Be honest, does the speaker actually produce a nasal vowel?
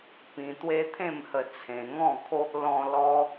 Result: yes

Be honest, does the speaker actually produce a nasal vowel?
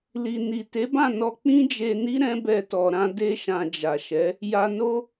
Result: yes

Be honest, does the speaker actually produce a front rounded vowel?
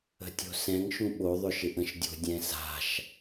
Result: yes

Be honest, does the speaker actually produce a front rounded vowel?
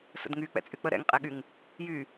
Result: yes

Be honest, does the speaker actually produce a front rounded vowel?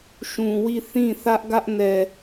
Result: no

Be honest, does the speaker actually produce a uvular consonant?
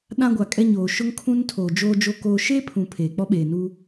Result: no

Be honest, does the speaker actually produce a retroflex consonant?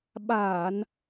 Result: no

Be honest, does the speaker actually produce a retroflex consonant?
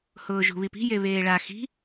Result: yes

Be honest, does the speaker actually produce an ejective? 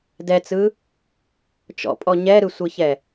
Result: yes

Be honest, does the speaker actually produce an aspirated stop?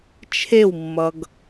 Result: yes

